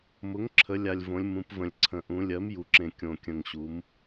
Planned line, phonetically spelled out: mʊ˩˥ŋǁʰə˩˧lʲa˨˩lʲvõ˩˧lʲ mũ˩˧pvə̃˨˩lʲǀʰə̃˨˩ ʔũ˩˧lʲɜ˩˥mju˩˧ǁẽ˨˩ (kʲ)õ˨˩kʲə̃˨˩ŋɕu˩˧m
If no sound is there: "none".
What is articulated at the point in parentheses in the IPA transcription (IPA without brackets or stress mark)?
kʲ